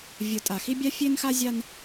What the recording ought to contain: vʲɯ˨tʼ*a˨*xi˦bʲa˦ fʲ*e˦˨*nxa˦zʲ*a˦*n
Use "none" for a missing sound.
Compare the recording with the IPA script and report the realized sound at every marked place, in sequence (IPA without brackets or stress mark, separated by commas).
a˨, e˦, a˦